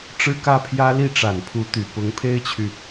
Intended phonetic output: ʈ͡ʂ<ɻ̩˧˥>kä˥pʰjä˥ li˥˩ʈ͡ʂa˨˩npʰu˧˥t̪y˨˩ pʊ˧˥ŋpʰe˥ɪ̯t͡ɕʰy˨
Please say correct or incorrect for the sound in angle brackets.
incorrect